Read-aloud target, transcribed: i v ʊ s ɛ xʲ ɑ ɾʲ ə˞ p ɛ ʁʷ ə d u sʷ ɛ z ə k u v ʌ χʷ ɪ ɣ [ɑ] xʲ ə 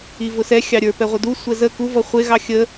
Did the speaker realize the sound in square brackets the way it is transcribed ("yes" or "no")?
yes